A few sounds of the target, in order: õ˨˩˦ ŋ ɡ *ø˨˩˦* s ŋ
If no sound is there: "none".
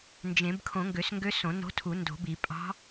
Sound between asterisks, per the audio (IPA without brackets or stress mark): ø˨˩˦